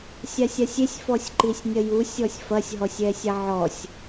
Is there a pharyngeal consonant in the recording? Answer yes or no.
yes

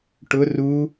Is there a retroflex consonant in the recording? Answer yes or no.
yes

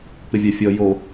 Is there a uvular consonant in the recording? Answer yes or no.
no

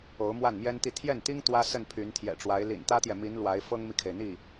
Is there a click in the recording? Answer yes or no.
no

